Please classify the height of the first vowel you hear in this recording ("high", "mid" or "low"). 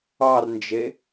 low